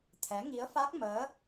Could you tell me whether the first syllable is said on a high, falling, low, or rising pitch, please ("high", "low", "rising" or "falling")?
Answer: rising